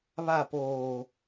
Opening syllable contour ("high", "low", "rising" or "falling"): falling